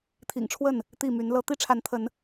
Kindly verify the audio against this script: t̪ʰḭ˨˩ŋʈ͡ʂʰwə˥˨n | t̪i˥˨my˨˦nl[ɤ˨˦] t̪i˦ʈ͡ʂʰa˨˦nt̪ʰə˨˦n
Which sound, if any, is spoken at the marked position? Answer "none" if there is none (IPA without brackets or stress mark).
ɤ˦